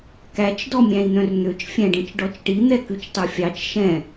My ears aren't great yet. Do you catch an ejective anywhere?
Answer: no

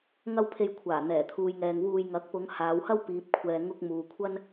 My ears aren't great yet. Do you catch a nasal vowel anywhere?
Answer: no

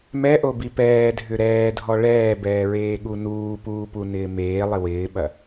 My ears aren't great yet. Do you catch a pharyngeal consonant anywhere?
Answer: no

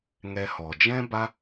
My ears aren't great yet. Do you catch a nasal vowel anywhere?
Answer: yes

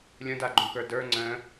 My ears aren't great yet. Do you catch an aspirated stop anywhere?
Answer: no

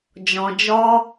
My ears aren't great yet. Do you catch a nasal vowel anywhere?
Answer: yes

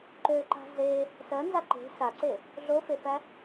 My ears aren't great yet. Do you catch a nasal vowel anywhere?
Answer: no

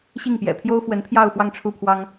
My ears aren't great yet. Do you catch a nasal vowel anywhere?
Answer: no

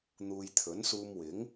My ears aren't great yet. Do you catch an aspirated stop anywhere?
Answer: yes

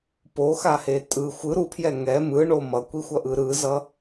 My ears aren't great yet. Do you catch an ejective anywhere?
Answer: yes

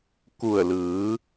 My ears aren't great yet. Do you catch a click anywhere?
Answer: no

